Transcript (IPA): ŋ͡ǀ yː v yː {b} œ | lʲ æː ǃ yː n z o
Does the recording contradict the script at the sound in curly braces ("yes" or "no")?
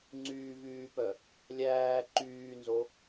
yes